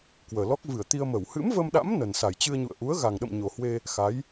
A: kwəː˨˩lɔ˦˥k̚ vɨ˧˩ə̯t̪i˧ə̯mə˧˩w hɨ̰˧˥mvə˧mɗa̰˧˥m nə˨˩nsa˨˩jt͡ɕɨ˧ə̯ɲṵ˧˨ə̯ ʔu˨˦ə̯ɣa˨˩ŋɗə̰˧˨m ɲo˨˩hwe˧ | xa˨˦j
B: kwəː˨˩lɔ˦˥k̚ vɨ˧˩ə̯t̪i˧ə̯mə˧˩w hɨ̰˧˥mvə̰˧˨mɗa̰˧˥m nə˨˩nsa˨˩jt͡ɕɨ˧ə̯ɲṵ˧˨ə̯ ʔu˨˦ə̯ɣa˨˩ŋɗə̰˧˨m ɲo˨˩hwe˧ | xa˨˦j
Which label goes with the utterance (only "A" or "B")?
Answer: A